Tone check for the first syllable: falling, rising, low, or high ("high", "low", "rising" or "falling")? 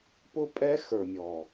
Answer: high